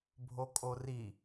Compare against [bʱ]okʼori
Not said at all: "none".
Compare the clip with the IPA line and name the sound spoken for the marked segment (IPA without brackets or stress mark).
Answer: bʱ